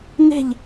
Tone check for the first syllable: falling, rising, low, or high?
falling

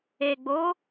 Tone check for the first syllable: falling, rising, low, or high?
low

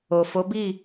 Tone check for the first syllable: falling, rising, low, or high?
low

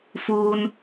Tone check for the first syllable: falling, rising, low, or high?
high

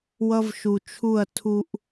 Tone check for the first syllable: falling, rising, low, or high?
high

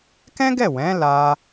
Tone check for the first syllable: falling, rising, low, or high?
high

